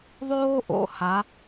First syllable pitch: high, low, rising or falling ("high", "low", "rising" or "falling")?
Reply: high